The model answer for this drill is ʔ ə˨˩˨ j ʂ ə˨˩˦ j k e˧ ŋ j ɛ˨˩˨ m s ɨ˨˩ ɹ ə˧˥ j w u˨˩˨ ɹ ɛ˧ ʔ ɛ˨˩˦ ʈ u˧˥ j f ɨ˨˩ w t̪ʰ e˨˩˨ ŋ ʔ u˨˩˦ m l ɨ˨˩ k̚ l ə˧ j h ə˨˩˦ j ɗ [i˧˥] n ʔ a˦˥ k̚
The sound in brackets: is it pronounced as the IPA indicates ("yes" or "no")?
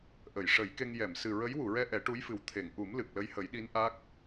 yes